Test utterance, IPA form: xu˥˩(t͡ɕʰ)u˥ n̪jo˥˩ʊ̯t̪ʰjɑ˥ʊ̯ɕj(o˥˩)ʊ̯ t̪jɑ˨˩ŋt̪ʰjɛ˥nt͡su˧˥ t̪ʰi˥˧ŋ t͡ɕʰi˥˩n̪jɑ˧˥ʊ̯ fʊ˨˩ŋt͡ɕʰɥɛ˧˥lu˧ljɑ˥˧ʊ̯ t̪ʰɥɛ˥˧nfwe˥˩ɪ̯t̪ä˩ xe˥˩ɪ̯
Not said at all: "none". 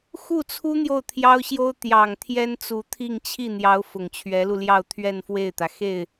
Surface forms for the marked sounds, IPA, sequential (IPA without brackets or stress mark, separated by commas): t͡sʰ, o˥